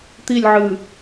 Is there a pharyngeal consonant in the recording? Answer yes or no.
yes